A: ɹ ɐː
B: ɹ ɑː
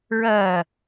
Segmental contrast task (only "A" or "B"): A